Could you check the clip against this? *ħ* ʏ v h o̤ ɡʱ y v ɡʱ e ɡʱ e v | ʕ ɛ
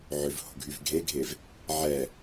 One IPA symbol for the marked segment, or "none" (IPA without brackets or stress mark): ʕ